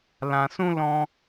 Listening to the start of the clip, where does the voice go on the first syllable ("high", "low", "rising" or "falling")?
low